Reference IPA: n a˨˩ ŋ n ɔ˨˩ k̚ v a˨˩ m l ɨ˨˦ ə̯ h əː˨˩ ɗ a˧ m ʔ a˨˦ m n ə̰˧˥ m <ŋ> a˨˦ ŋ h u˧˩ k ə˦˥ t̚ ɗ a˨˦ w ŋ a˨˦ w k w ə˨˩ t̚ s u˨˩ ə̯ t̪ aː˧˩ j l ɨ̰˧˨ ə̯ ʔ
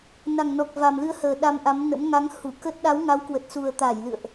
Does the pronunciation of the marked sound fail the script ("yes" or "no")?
no